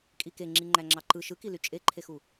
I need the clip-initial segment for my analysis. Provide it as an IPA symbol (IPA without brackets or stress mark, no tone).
kʼ